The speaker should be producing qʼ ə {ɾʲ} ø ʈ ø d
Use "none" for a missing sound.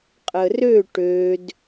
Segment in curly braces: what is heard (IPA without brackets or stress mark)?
r